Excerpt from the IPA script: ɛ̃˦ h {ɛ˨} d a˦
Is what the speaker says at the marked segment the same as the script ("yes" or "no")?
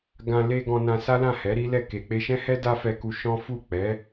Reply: no